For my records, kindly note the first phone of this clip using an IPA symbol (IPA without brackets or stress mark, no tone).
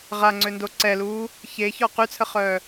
ʁ